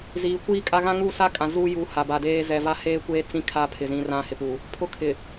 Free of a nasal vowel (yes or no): no